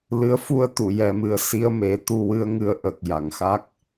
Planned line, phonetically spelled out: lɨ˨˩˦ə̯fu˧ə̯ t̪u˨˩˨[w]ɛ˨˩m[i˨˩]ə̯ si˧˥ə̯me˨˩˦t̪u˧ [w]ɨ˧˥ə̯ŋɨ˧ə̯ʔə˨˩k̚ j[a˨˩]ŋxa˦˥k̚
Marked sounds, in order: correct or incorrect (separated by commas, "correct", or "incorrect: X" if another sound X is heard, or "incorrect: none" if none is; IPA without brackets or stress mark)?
incorrect: j, incorrect: ɨ˨˩, correct, correct